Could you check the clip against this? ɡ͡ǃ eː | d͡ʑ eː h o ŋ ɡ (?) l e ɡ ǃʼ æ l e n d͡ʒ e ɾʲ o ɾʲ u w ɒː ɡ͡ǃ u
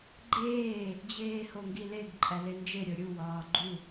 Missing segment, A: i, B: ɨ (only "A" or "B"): A